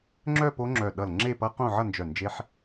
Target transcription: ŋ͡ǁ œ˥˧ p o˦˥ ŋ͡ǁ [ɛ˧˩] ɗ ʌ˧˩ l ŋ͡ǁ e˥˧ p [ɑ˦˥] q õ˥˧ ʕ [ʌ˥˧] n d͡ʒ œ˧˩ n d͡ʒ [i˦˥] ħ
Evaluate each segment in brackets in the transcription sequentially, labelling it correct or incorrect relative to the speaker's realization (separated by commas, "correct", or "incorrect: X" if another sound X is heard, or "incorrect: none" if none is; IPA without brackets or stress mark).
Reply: incorrect: œ˧˩, incorrect: ʌ˦˥, correct, incorrect: e˦˥